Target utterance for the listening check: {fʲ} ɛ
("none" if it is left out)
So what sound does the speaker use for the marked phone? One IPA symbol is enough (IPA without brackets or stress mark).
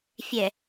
fʲ